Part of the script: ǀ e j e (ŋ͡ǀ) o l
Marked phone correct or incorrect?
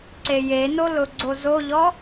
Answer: incorrect